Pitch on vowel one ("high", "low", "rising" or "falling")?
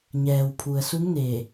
low